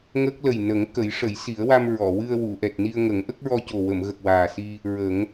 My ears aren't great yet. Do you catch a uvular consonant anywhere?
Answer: no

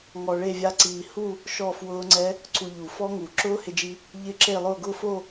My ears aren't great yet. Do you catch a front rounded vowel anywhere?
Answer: no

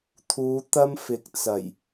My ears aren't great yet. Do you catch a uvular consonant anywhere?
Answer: no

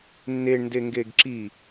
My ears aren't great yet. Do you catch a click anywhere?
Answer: yes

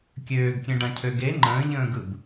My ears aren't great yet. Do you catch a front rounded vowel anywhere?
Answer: yes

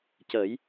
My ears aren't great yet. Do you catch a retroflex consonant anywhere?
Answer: no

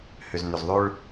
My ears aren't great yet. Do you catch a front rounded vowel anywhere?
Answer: yes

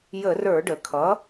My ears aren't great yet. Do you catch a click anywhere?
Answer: no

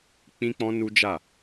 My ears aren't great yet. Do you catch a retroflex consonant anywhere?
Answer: no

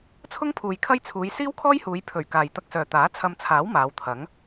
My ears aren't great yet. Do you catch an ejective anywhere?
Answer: no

